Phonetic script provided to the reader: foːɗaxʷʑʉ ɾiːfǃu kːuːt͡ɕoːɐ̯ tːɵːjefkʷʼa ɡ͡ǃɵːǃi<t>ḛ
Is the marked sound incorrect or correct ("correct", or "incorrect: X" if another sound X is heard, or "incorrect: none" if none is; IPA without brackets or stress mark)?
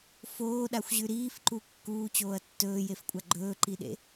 incorrect: ɗ